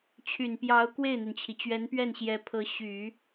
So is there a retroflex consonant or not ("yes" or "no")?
no